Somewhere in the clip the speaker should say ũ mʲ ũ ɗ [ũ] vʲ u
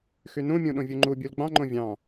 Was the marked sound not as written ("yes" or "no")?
yes